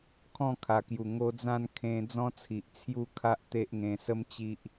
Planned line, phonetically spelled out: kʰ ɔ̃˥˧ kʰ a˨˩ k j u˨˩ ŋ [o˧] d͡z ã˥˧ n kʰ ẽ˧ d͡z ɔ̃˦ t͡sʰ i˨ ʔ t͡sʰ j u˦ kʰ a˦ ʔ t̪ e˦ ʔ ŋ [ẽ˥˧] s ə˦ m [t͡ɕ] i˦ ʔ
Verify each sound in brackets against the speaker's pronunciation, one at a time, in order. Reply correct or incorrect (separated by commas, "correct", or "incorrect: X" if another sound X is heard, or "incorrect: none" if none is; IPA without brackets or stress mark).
correct, incorrect: ẽ˧, correct